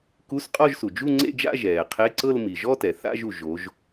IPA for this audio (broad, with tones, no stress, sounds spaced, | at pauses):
k u˧˥˧ s qʼ ɔ˥˧ ʒ s u˩ d͡ʒ u˥˧ ŋ͡ǀ ḛ˥˧ d͡ʒ a̰˥˧ ʒ ɛː˩ qʰ e˧˥˧ ǀ ɤ˥˧ l m i˩ ʒ ɔ˥˧ t ɛ˩ θ a̰˥˧ ʒ u˩ ʒ o˩˧ ʒ